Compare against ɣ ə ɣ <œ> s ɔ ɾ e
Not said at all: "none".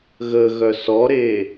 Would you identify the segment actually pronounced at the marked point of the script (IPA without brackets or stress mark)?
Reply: œ